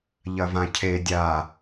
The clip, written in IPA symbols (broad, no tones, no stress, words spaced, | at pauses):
ʎɐvãcʰe dʲa